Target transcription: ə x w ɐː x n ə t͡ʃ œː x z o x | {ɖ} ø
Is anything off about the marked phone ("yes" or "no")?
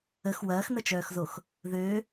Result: yes